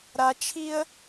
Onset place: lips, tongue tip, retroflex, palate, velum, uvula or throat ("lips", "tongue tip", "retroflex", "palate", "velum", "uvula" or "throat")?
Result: tongue tip